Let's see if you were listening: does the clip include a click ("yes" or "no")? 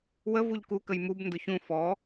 no